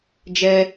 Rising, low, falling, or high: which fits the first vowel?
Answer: high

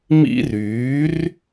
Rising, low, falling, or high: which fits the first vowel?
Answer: high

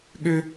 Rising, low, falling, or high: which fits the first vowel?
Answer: high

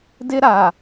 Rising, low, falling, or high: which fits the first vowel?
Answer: high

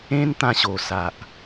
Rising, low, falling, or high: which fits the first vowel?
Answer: high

